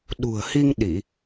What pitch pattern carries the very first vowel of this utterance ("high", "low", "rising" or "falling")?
low